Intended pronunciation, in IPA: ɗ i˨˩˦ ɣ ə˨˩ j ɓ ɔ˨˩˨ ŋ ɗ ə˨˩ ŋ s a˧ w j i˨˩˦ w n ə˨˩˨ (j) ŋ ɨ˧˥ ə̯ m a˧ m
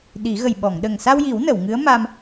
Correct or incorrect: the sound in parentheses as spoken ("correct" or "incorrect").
incorrect